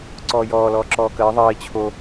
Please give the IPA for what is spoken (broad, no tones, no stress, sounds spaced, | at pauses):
ǀ ɔː j ɔː l ɔː ǁ ɔː k əː ðˤ əː i̯ t͡ɕʰ o